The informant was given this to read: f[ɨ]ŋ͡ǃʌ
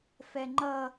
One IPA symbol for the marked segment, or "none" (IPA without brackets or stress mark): ɛ